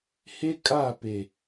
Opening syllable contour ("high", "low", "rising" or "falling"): high